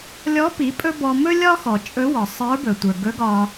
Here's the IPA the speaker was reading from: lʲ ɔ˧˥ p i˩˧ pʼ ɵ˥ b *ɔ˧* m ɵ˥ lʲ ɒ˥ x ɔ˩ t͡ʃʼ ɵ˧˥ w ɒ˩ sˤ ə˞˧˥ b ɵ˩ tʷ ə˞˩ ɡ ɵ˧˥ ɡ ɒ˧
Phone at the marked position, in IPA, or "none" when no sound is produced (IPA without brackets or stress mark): ɔ˧